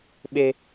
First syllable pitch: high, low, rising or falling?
high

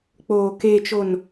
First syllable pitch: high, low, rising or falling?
low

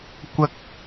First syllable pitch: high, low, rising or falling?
high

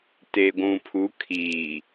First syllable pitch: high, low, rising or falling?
low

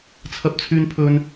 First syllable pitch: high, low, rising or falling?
high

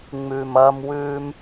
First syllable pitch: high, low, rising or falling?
low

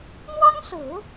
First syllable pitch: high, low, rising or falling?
high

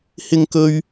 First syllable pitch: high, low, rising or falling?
high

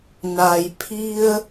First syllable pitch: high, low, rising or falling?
low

